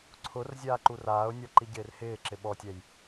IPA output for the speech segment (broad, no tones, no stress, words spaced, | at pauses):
ǀʰʊr zʲaːǃuraːʊ̯nʲɔ ǃiɟɪːrhɪːǁɪ ɓɔtʲɛj